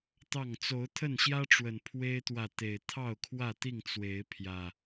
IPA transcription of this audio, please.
t̪ ɑ˥˨ ŋ t͡s o˨˦ ʊ̯ t̪ʰ ə˥˨ n ɕ j ä˦ ʈ͡ʂ w ə˨˩ n pʰ w e˦ ɪ̯ t̪ w ä˨ t̪ e˨˩ ɪ̯ t̪ʰ ɑ˥˨ ʊ̯ kʰ w ä˥˨ t̪ i˥˨ ŋ t͡s w e˨˦ ɪ̯ pʰ j ä˨˩

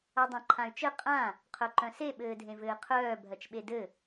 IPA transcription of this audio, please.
a dˤ ã ǃʰ ã y̯ t͡ʃ ɘ qʼ ã | qʰ œ ǃ œ̃ s e ɓ ɘː dʱ ẽ v ɘː qʰ œː bʱ ɜ t͡ʃ ɓ e d ɘ

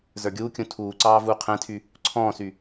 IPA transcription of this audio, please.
z ə˞ ɡʲ uː kʲ ũ tʰ uː ǀ ɑː v uː qʰ ɛ̃ tʰ y | ǀʰ ɔ̃ː s y

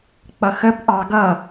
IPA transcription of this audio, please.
k͡p ʌ x ə b ʔ ɑ ɡ ʌ

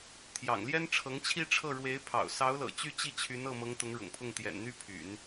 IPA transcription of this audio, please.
t̪ʰ j ɑ̰˨˩ ŋ l j ɛ˥ n ʈ͡ʂʰ ɤ˧˥ ŋ t͡ɕʰ i˥˧ ʈ͡ʂʰ ɤ˥˩ ɻ w e˧˥ ɪ̯ pʰ ɑ̰˨˩ ʊ̯ s ɑ˧˥ ʊ̯ l ɤ̰˨˩ t͡ɕ y˥˧ t͡ɕ i˥˩ t͡ɕʰ y˧˥ n ɤ˥˩ m ɤ˧˥ ŋ t̪ ʊ˧˥ ŋ ɻ ʊ̰˨˩ ŋ pʰ ʊ˥˩ ŋ t̪ j ɛ̰˨˩ n n̪ y˥ pʰ y̰˨˩˦ n

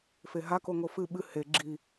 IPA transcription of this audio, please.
f e ɦ a k o ŋ o f ɨ ɓ ɨ h e ɡ͡ǁ i

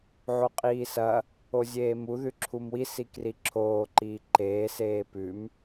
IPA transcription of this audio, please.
ʕ o qʼ iː s ɐ | o zʲ eː m u ð ʉ ǁʰ u m w i s i k r i ǁʰ oː ǃ iː ǃ eː s eː p ʉ m

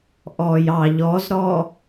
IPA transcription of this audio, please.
ʔ ɔ j ɑ ʎ ɔ z ɾ ɔ

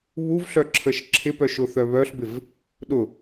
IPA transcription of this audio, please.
β u v ɬ œ ǁʰ ə ʃ ǁʰ ɪ p œ ʃ ʊ θ œ β œ ɬ b ɪ v | ɗ ʊ

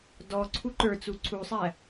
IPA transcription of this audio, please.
d ɔ ǀʰ u ǃ ə˞ t͡s u ǀʰ u sˤ æ

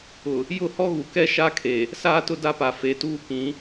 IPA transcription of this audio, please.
ʊ˨ | j ʊ˦˨ h ɔ˦ ɣ u˨ k ɛ˦ ʃ a˦ kʰ e˨ | s aː˦ t ʊ˦ d a˦ p a˨ f e˨ t uː˦ k ĩ˨˦

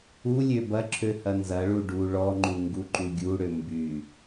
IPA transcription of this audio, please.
u lʲ ø b ɐ ǁʰ ø h ɐ n z ɐ ɭ u ɖ u ɭ ɔ ŋ͡ǃ u ŋ ɡ u ǃ u ɡʲ u ɽ ø m b y

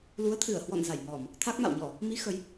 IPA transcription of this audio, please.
l u˨˦ ə̯ t̪ʰ ɨ˧˩ ə̯ h w ɔ̰˧˨ n z a˧˩ j ŋ ɔ˧˩˨ m | t̪ʰ a˦˥ k̚ m a̰˧˨ w ɲ ɔ˧˩˨ | m i˨˦ x ə˨˦ j

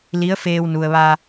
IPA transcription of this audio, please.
l i˧˥ ə̯ f eː˧ w n u˩ ə̯ ʋ a˧

